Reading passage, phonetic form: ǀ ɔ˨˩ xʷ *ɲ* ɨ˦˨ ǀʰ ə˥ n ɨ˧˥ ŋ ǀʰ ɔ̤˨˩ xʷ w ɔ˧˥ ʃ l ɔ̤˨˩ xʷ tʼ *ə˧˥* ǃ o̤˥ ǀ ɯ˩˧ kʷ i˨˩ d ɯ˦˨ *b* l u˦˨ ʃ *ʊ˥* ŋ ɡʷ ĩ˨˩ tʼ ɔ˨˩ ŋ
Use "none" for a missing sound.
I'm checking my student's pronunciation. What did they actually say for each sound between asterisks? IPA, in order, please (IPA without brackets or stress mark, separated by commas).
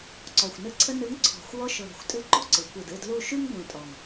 n, ɨ˧˥, d, ʉ˥